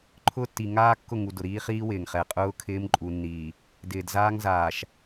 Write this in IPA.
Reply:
ǃʰ ʊː˦ tː i˨ ŋ aː˦ kː ʊ˦˨ ŋ u˨ d ʊ˨ ɾ iː˦ χ iː˦ w ɪː˨ ŋ χ ɛ˨ qʼ ʊː˦ kʰ ɪː˦ m ǃʼ u˨ nː iː˨ | d ɪː˨ d z aː˦ ŋ z aː˨ ʃ

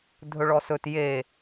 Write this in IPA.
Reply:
dʱ ɵ ɭ ɔ s ɵ t j e

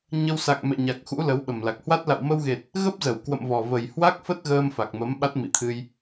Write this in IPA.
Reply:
ɲ ə˧ w s a̰˧˨ ŋ m ɛ̰˧˨ ɲ a˨˩ k̚ x ṵ˧˥ l ə˨˦ w ɓ ə˨˩ m l a˨˩ k̚ h w a˦˥ t̚ l a̰˧˨ w m ə˧ w ɣ e˨˩ t̚ | ɣ ə˦˥ p̚ z ə˧˩ w k w ə̰˧˨ m v ɔ˨˩ v ə˨˩ j h w a˦˥ k̚ f ə˦˥ t̚ ɣ əː˧ m f a˨˩ k̚ m ə˨˦ m ɓ a˦˥ t̚ m ḭ˧˨ t̪ʰ ɨ˧ j

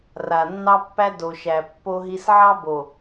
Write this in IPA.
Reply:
r a˨ nː ɑ˦ pː æ˦ d o˨ ʃ æ˨ pː o˦ ɦ i˦ s ʕ ɑ˦ b o˨

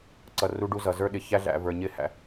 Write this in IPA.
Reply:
ǀ ʌ˨ r u˦ ɖ u˦ z ʌ˨ z ə˞˦ ɗ ɪ˨ ç æ˦ ɮ æ̰˨ v ə˞˨ ɲ ɪ˦ h æ̰˨

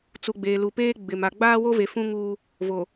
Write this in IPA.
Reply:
t͡s u˨ ɡ͡b eː˨ l u˨ p eː˦ ɡ͡b ɪ˨ m a˨ ɡ͡b aː˦ w o˦ v e˨ f ũ˦ ŋ uː˦ | v o˨

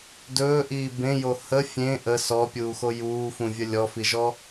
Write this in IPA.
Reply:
d ɵː ʔ iː b ẽ j o h ə fʲ ẽ ʔ ə s ɔ pʲ uː x o j uː f ũ vʲ ə lʲ ɔ f i ʒ ɔ

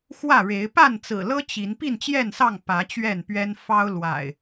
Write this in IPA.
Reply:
x w ä˥˨ ɻ e˨˦ ɪ̯ p a˥˨ n t͡s ɹ̩˨˩ l ɤ˦ t͡ɕ i˨˦ n p i˥˨ n t͡ɕ j ɛ˥˨ n s ɑ˥˨ ŋ p ä˨˦ t͡ɕ ɥ ɛ˥˨ n p ɥ ɛ˦ n f ɑ˦ ʊ̯ l w a̰˨˩ ɪ̯

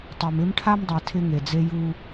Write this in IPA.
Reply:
tˤ e˨ m ɪ˦ m ʈʰ a˦ m dˤ ɛ˨ tʰ ɪ˦ ŋ e˨ d͡z e˦ j u˦

